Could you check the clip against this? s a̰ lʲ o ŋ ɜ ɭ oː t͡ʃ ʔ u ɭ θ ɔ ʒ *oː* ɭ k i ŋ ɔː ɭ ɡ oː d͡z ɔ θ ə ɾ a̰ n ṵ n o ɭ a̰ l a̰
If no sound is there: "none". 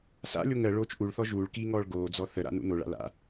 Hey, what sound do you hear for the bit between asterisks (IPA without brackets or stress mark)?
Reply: uː